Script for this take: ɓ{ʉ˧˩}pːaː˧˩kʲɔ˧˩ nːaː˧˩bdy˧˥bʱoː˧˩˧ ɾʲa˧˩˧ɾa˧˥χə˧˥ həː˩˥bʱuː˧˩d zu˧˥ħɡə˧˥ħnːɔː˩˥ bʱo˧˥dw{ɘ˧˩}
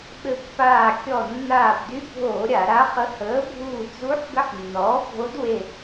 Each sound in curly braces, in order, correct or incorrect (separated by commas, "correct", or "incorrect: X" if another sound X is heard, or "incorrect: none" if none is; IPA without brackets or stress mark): incorrect: ɘ˧˩, incorrect: e˧˩